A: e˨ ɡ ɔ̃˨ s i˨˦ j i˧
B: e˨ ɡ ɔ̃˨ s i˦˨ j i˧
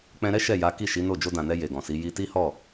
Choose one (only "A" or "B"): A